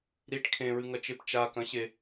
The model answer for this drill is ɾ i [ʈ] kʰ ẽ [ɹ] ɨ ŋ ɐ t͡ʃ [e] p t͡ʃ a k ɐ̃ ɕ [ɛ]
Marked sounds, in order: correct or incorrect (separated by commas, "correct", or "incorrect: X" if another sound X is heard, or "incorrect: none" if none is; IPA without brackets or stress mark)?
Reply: correct, correct, correct, incorrect: e